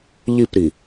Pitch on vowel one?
falling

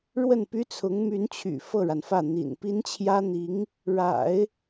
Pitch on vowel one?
falling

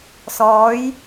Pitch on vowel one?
rising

